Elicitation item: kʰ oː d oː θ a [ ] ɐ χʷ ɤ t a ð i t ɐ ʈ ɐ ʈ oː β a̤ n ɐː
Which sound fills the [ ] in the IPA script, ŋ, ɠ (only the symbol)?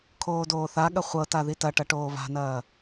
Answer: ɠ